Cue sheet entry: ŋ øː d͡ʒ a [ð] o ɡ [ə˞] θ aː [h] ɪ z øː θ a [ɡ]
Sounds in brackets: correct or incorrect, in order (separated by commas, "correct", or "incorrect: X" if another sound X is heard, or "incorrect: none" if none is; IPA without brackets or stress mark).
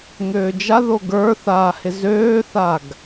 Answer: correct, correct, correct, correct